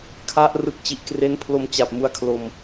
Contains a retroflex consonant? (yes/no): no